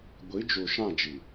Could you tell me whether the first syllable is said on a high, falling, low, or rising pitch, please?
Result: rising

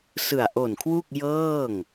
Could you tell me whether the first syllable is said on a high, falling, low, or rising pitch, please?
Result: low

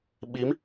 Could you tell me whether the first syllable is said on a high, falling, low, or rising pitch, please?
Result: rising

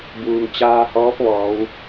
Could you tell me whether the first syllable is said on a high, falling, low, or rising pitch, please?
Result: low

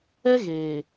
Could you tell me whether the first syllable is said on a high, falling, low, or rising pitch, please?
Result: high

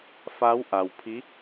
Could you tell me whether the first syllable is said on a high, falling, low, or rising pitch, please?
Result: rising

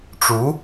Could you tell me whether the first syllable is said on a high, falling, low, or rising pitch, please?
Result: rising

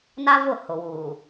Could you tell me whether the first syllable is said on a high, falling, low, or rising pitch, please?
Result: high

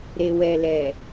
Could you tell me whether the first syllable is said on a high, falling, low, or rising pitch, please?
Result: low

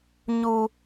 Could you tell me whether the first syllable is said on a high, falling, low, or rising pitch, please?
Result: high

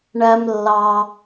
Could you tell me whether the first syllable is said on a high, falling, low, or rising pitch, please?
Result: low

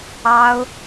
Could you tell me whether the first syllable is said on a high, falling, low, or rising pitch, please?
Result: high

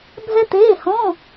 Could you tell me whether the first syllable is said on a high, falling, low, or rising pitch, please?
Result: high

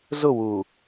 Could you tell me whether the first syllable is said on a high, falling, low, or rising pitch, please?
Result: falling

